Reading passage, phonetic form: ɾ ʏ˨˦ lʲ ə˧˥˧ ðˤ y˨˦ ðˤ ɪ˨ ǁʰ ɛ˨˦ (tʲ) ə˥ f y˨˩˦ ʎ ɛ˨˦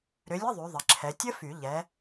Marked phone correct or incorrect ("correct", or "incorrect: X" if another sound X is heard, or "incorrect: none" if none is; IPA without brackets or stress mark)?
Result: correct